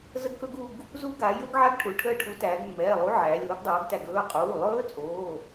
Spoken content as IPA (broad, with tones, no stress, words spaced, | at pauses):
zə˦˥ɡkɵ˦˥ɡu˦˨ɡ | zu˦˥ɡa˩˧ jɵ˦˥ɡʕa˦˥ɡʈʰu˩˧ ʈʰəː˦˨ʈʰu˨˥tæː˩˧ɡ mːɛː˩˧˩lˠu˨˥ ʕæː˩˧lʲoː˨˥ɡdˤoː˨˥ɡtæ˦˨ɡ ɵː˩˧˩qʼuː˩˧˩lˠɵː˦˥t͡sʼoː˩˧˩